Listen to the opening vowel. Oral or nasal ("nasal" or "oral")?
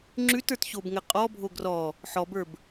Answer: oral